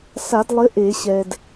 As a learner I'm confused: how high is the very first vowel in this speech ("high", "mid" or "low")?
low